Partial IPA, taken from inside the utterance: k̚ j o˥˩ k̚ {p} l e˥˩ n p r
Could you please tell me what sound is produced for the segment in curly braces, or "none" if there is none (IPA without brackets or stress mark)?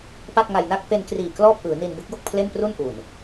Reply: pʰ